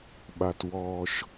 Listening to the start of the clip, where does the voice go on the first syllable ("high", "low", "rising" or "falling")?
low